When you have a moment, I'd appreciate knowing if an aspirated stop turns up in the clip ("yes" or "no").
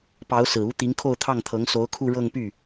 yes